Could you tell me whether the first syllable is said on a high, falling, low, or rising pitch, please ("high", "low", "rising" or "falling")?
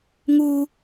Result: high